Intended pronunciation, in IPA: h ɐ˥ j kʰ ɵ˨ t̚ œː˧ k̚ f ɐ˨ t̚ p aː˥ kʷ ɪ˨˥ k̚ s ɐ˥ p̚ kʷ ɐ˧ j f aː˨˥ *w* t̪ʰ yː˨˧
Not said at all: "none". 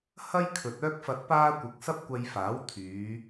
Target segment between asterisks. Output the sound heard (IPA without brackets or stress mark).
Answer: w